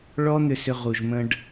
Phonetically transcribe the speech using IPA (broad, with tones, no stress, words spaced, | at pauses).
ɭɔ˦n̪ʏ˧sʏ˧ ʁu˨ʒmə̃˧ɖ